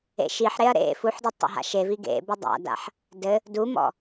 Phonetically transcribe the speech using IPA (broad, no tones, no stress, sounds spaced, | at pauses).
ḛ ʃ i ħ ɾ e ɐ̯ ɾ ḛ f u ħ d ɯ tˤ ḛ ɦ a̰ ʃ e v i ɡ ḛ b ɘ dˤ a̰ d a̰ ħ | d ɘ | d u m ɔ̰